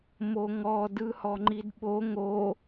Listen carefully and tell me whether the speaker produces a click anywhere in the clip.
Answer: yes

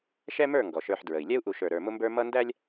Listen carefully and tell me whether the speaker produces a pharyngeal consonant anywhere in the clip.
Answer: yes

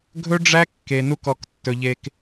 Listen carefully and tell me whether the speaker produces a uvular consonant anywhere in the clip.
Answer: no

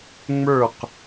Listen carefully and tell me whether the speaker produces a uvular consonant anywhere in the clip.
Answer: yes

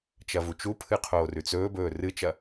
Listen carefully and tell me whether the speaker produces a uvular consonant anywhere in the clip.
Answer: yes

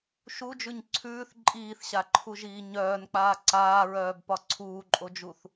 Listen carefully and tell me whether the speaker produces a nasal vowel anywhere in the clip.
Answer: no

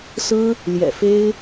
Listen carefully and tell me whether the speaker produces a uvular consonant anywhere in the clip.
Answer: no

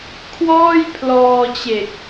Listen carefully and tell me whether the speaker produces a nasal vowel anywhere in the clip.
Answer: no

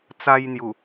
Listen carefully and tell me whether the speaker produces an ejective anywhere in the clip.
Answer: no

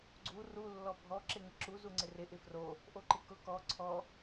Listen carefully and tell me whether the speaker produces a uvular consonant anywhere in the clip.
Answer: no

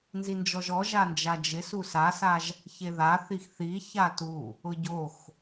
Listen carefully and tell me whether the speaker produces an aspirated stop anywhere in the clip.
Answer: no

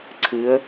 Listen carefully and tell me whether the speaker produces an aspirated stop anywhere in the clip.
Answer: yes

